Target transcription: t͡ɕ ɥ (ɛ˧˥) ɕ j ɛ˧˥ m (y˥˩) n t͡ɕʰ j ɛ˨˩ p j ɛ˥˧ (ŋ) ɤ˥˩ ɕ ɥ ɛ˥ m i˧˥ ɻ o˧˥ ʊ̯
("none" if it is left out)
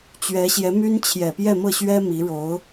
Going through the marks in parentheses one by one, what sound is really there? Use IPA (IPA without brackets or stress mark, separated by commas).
ɛ˧˥, y˥, m